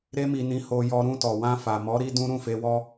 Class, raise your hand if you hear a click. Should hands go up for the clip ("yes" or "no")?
no